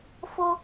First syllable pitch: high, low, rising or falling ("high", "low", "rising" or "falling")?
high